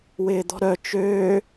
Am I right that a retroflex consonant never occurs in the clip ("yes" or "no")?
yes